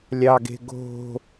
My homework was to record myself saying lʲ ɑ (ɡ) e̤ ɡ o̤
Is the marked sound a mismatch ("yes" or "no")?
no